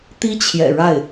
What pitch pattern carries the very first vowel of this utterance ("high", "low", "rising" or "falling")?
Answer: high